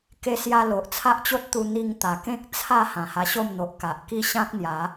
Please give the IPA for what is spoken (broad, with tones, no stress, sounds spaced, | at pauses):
k e˧ s j a˧ l o˨ ʔ t͡sʰ a˦ ʔ t͡ɕ o˦ t̚ t̪ u˧ n̪ i˧ ŋ t̪ a˨˩ k ẽ˦ k̚ t͡sʰ a˥˧ h ã˨˩ h a˧ ɕ o˥˧ m n̪ o˨ ʔ k a˨ ʔ k i˦ ɕ ã˦ k̚ n̪ j a˨˦